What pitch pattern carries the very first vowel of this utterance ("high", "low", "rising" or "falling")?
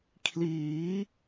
rising